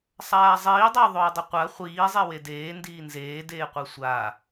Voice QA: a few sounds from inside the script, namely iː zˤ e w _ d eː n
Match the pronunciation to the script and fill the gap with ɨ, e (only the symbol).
e